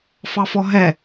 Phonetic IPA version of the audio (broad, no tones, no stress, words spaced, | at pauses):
fɑfɔɦɛ